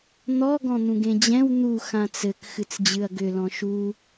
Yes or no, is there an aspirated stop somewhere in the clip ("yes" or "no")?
no